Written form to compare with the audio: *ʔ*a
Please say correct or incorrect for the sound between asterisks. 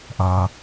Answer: correct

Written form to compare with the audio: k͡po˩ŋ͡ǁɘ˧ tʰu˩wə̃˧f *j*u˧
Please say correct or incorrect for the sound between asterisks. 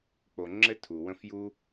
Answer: correct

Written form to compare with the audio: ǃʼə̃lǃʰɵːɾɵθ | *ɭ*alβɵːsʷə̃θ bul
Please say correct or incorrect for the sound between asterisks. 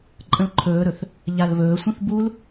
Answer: incorrect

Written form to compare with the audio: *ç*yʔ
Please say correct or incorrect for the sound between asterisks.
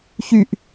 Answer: correct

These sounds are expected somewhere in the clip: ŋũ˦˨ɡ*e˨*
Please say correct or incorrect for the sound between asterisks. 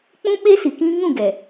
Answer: incorrect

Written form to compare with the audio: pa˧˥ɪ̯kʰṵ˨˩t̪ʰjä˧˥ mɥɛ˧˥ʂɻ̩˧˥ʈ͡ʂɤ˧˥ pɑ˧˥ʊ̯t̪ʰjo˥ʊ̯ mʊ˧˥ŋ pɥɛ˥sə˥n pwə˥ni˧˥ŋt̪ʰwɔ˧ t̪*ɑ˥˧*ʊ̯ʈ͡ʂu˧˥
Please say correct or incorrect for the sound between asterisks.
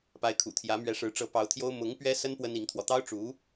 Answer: incorrect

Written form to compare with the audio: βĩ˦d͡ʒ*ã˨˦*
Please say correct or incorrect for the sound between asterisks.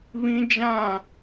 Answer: incorrect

